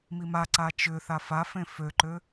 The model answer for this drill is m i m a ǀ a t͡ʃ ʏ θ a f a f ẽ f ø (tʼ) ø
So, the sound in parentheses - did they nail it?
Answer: no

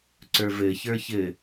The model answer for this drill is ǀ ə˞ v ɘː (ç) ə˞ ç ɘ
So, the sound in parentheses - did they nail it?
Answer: yes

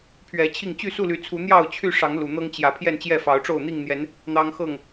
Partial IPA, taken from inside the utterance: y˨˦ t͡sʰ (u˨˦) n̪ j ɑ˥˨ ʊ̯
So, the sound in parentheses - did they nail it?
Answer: yes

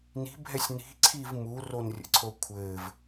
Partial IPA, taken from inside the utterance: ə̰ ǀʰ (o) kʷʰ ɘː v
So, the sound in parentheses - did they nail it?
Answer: yes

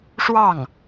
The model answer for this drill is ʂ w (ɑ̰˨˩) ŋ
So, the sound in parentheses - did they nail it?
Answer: no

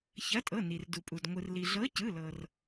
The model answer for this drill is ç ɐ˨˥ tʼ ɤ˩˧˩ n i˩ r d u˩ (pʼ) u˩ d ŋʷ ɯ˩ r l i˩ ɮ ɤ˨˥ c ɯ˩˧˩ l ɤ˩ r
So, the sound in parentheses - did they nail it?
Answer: yes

